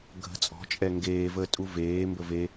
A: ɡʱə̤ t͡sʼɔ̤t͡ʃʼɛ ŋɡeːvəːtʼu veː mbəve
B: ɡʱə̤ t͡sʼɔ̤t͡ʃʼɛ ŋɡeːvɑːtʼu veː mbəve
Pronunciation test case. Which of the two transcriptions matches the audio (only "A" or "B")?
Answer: A